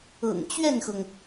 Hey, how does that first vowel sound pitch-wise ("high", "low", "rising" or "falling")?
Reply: low